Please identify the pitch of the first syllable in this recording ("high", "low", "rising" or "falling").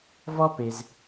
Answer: high